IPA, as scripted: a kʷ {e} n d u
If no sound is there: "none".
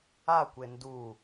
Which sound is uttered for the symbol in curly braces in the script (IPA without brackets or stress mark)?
e